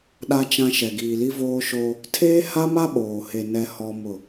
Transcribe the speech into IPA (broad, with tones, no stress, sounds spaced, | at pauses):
ɗ a˦ t͡ʃ ã˦ ʃ ɛ˨ ɡ iː˨ l i˦ v oː˦ ʃ oː˦ | tʰ eː˦ h a˦ m a˦ ɓ oː˨ h e˨ n ɛ˦ h ɔ˦ m ʊ˦˨